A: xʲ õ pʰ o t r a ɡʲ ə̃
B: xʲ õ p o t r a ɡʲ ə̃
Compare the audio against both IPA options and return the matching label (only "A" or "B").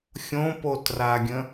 B